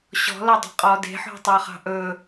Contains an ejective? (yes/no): yes